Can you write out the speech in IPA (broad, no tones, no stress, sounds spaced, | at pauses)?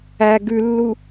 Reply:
æ ɡ ʉ lː u